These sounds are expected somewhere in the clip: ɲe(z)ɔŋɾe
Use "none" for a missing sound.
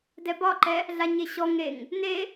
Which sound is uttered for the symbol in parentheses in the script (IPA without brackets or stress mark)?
ɕ